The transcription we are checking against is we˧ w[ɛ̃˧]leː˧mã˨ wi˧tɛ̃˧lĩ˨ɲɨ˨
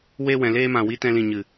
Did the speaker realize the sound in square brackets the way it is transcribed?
no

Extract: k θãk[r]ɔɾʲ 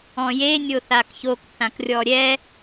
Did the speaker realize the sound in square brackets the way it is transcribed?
no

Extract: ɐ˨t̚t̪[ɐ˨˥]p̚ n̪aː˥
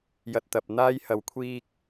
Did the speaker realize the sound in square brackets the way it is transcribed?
no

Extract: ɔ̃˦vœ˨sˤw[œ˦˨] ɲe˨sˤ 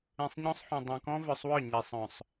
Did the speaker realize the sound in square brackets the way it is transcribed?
yes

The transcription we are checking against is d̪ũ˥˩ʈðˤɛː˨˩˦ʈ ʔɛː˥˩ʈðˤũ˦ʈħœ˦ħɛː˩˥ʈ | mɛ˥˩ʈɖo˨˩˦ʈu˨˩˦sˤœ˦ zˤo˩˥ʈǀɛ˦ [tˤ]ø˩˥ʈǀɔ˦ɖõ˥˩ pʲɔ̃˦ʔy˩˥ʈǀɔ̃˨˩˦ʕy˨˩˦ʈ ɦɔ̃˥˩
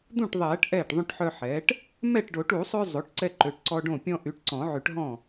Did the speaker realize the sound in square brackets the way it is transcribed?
no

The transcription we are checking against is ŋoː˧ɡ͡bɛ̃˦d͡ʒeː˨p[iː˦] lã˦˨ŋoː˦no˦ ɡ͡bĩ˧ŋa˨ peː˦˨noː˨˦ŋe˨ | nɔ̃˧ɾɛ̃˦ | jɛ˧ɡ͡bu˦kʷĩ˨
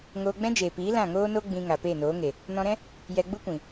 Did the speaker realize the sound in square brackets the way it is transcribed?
no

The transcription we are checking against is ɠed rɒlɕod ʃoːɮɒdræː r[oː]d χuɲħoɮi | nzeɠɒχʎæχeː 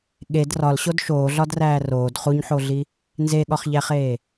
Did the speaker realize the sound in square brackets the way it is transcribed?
yes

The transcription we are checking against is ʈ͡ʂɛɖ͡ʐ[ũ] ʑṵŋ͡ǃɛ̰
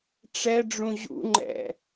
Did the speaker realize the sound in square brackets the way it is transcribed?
yes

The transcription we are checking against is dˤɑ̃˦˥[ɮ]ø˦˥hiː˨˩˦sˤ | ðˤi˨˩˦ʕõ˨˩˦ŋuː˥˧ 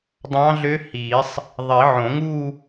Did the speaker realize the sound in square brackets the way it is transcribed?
yes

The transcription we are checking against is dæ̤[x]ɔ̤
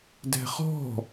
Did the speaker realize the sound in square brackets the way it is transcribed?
no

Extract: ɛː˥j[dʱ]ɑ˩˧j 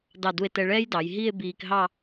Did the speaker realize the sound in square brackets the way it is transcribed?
no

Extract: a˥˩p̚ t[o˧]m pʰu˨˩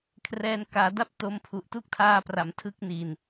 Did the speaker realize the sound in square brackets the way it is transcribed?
no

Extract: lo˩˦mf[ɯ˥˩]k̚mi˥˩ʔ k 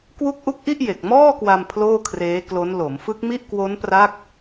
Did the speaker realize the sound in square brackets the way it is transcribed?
no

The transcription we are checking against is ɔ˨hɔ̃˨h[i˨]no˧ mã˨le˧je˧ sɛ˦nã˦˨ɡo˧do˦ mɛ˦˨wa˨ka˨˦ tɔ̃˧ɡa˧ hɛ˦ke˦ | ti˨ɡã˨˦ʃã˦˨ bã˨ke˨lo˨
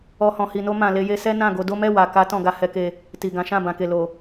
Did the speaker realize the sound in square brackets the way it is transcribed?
yes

